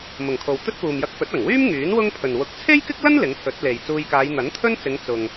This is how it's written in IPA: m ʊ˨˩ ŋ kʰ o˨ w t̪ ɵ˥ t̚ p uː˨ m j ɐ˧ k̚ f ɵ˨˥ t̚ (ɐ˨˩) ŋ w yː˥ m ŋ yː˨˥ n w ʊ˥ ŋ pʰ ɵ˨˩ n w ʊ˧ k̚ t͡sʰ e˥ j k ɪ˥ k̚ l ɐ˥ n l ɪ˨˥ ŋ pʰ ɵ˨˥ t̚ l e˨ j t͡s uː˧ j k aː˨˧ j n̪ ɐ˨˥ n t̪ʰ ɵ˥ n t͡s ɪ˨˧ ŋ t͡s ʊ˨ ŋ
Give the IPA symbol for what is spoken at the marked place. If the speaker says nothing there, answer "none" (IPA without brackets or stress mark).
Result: ɐ˨˩